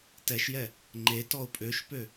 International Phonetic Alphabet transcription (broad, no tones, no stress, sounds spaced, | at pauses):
t ɛ ʃ j ɛ | ŋ͡ǃ e t ɔ ʊ̯ pʼ ø ʃ p ø